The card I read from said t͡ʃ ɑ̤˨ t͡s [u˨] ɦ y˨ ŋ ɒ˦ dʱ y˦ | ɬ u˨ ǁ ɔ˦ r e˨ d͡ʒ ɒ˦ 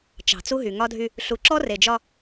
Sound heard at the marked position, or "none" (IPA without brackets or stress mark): u˦